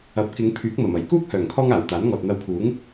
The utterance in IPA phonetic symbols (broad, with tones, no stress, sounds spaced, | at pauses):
ɐ˨˥ p̚ k ɪ˨˧ ŋ pʰ yː˨˥ k̚ m ɐ˨˩ m ɐ˨˩ j k uː˥ k̚ h œː˨˩ ŋ kʰ ɔː˥ ŋ aː˨˩ w t̪ aː˨˥ n ŋ ɔː˨ t̚ n̪ ɐ˧ w kʰ uː˨˥ ŋ